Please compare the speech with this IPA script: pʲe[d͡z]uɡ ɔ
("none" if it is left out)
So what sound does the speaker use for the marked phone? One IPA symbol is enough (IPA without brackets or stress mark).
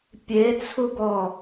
t͡sʰ